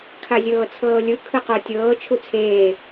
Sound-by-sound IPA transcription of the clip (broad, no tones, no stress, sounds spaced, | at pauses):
kʰ a zʲ ɤː t͡sʰ ɤː lʲ ɯ kʰ ɯ q o tʲ ɤː t͡ʃʰ u t͡sʰ eː